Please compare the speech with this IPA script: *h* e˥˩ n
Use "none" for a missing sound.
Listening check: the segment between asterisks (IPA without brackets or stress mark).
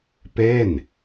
p